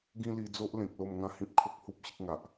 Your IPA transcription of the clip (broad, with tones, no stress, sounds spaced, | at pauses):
ɡ ĩ˦ l i˧ d͡z o˦ ʔ l ẽ˨ k̚ l o˥˧ m ŋ ã˥˧ h ĩ˦ p̚ kʰ o˦ k̚ h u˦ p̚ ɕ ə˦ k̚ ŋ a˨ ʔ